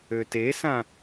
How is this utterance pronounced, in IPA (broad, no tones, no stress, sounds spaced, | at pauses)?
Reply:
ø t e s ã